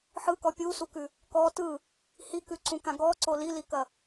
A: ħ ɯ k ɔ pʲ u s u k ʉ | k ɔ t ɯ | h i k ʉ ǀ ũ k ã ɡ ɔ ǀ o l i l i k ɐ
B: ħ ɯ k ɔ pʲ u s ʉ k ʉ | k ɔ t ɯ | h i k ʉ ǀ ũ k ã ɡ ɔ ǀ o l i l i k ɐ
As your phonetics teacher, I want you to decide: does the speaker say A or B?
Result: A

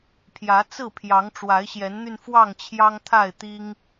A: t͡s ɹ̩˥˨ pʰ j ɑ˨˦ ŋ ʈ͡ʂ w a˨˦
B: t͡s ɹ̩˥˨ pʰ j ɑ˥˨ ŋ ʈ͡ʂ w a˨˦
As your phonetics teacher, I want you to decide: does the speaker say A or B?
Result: A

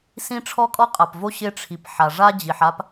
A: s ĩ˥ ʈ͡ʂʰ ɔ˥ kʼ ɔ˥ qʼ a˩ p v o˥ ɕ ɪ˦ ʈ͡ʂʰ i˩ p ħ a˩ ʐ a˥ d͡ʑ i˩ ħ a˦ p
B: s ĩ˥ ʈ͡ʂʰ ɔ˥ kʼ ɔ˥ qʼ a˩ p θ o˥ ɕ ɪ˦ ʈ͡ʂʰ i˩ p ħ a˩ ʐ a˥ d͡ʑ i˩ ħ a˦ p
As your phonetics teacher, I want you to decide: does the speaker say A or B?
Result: A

